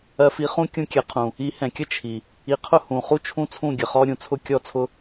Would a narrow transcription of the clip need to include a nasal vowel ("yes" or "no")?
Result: yes